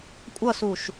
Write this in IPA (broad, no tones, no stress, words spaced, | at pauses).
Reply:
kʷʼʌsuʃ